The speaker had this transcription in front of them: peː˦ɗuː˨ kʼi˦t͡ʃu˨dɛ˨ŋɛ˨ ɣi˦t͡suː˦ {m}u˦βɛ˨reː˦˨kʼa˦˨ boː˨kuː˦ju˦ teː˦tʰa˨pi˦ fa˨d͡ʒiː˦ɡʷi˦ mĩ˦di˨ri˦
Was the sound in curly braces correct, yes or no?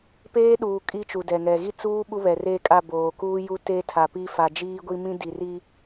no